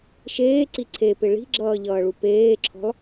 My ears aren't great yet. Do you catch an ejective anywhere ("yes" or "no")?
no